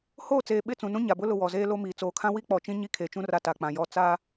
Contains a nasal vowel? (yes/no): yes